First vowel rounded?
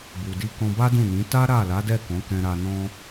yes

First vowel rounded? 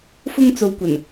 yes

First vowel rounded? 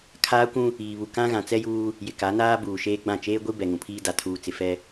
no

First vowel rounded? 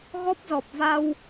yes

